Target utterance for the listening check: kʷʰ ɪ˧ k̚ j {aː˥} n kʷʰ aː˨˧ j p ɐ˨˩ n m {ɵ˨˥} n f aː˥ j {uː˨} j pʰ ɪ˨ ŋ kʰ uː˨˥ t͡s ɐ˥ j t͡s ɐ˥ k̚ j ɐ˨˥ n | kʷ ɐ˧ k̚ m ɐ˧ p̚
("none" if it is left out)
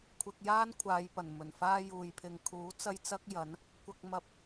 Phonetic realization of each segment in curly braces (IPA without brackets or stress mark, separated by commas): aː˥, ɵ˨˩, uː˨